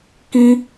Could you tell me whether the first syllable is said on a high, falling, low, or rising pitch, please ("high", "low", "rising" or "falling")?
high